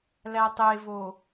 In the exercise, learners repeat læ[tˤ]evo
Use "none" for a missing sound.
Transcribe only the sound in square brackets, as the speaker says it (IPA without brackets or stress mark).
tˤ